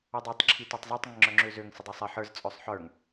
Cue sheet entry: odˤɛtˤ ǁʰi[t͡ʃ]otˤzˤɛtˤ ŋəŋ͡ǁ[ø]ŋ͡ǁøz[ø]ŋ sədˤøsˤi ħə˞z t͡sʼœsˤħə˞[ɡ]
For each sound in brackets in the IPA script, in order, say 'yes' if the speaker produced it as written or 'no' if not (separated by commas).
no, no, yes, no